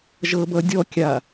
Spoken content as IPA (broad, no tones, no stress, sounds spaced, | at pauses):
ʒ ɤ b ʌ dʲ ɔ kʲ a